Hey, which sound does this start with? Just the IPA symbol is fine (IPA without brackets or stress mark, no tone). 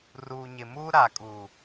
r